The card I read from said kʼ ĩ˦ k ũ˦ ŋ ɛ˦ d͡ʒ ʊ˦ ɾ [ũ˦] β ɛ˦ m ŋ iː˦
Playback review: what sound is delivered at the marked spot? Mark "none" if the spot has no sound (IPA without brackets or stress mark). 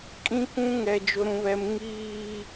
ũ˦